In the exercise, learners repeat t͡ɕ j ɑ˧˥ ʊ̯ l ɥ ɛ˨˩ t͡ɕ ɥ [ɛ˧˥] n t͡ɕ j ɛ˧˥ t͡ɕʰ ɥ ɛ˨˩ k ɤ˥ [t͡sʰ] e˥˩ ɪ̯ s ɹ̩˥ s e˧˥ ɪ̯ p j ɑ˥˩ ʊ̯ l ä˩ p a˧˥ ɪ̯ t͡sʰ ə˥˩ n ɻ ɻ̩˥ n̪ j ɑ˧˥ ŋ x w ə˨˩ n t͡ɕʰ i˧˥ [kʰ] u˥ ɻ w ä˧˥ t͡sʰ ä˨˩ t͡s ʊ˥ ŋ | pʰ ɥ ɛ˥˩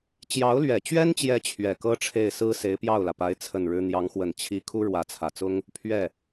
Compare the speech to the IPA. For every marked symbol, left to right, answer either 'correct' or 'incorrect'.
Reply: incorrect, incorrect, correct

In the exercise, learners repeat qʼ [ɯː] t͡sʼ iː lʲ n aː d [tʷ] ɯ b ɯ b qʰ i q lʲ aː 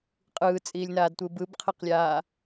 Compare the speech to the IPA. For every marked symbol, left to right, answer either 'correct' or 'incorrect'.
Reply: correct, correct

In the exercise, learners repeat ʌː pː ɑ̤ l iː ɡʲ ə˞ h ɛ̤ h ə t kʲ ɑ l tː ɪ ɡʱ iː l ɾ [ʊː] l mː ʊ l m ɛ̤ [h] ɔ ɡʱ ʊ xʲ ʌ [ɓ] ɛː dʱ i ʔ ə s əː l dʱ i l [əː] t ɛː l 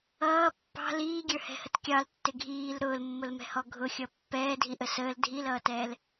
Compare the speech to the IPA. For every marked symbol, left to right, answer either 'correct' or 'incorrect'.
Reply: correct, correct, incorrect, incorrect

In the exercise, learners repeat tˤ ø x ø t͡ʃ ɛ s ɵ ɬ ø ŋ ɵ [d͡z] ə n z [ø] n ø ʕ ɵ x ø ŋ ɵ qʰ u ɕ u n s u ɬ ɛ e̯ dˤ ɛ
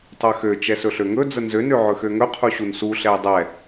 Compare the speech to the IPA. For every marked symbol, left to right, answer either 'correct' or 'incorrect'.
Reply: correct, correct

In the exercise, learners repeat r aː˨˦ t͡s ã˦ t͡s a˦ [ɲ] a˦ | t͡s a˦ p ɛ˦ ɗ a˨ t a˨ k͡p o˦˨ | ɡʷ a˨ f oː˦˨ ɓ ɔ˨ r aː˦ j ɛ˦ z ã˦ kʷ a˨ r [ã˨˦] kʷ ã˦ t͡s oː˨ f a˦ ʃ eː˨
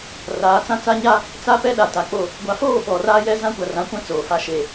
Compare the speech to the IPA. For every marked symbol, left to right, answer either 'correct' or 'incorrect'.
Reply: correct, correct

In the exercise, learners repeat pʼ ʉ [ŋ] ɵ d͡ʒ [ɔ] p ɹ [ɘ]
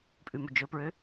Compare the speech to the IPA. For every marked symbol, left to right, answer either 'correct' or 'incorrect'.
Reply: incorrect, incorrect, incorrect

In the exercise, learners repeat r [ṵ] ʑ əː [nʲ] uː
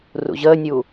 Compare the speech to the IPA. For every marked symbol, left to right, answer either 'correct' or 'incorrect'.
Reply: correct, correct

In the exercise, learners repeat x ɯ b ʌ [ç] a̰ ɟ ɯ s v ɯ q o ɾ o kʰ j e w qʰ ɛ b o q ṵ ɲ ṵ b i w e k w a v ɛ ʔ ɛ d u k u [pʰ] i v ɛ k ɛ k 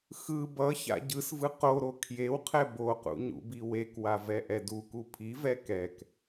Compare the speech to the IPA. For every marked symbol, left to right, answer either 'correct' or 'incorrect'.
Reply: correct, correct

